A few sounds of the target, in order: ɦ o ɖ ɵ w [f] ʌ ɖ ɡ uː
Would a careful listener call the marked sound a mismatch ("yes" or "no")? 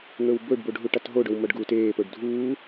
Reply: yes